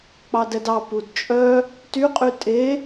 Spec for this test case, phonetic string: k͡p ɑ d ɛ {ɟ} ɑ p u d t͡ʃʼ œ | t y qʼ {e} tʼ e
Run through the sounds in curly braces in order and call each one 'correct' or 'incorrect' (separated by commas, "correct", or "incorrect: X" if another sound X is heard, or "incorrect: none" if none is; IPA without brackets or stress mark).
incorrect: d, incorrect: y